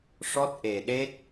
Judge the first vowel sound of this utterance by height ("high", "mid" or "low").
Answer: mid